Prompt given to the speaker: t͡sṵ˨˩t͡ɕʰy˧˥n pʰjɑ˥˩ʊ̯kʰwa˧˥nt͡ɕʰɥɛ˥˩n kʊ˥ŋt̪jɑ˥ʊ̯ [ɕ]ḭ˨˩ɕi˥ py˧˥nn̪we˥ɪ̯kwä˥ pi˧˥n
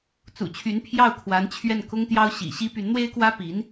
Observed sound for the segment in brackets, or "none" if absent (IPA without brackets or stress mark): ɕ